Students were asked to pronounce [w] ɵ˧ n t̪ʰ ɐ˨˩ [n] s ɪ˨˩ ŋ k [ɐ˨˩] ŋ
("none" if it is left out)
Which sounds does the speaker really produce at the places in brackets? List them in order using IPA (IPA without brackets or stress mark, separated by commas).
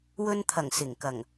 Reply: w, ŋ, ɐ˨˩